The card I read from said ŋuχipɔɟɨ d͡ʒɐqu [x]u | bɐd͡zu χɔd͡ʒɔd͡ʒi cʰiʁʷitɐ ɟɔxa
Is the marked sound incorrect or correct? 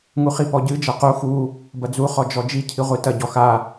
correct